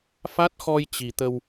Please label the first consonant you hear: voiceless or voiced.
voiceless